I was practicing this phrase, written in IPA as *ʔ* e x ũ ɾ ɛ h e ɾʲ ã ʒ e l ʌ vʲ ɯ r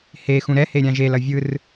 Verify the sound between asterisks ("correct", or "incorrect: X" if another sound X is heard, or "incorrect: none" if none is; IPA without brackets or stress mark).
incorrect: h